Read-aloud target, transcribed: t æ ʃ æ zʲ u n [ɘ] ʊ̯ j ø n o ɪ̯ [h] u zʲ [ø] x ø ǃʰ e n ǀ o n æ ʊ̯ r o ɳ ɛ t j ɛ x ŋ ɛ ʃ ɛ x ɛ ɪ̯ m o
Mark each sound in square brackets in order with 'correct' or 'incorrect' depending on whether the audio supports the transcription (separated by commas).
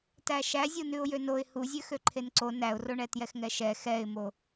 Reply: incorrect, correct, correct